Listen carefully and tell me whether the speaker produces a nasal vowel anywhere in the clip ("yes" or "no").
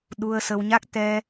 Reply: no